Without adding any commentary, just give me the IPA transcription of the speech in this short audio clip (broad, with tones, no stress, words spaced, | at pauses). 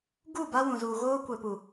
ɡu˦˨ ba˦wũ˨zuː˨ ɣoː˦kʷɛ˨pu˨